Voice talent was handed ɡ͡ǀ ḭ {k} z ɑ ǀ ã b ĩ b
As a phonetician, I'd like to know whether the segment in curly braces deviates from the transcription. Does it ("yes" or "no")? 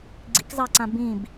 no